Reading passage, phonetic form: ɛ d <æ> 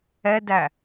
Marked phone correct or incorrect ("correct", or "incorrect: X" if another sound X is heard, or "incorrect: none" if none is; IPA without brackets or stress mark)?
correct